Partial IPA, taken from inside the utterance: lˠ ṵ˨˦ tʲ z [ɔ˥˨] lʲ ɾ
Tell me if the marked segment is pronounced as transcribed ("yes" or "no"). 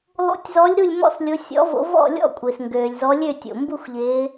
no